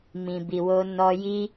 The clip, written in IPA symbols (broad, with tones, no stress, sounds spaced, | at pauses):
m ĩ˨ b i˨ w o˧ n ɔ˧ j i˦